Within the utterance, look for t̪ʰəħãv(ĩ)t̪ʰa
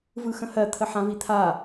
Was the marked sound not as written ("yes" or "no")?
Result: yes